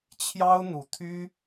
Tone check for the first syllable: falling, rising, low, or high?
high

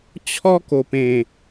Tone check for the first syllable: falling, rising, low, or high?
high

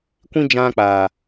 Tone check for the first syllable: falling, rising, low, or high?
high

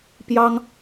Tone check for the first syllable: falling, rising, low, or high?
high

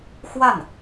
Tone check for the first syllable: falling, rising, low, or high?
falling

